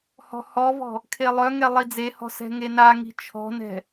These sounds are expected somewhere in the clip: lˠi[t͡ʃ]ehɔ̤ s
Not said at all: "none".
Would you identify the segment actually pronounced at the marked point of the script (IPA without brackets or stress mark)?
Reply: d͡z